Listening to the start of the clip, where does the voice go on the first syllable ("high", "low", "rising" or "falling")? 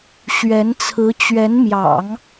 rising